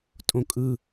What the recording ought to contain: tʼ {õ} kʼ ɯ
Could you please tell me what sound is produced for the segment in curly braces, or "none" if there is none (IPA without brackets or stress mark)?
õ